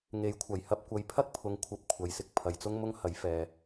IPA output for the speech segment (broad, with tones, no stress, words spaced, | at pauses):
ŋe˨˥jkʷʰɐ˨˩jhɐ˧p̚ kʷɐ˨jpʰɐ˥k̚ pʰʊ˨ŋ kʷʰɐ˨p̚ kʷʰɐ˨jsɪ˧k̚ pʰɐ˨jt͡sʊ˥ŋmʊ˥ŋ hɐ˨˥jfɛː˨